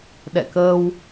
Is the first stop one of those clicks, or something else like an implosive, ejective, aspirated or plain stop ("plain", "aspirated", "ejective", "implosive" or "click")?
implosive